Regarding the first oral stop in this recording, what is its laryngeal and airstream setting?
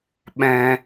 implosive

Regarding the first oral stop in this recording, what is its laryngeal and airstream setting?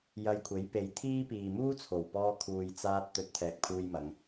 aspirated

